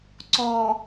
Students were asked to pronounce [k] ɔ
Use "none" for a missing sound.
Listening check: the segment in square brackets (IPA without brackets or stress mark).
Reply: ǀ